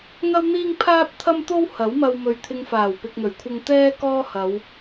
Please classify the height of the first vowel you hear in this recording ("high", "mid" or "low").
low